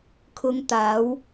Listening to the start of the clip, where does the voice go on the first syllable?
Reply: low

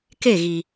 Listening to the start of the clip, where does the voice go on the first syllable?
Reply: falling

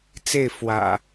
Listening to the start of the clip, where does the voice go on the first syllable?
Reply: falling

